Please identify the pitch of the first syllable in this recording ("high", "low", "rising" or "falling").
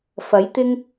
rising